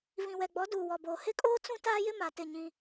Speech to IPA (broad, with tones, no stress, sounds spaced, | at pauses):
v ĩ˨ w ɛ˨ ɡ͡b ɔ˨˦ d uː˨ w ɔ˨ b oː˨ h ɪ˦ kʼ oː˦ t͡s ũ˦ t aː˦ j ɪ˦ m a˨ t ɪ˦˨ ɲ ĩ˦